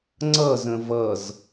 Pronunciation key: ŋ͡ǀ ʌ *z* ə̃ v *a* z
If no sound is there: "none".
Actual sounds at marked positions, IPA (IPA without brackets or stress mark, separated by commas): z, ʌ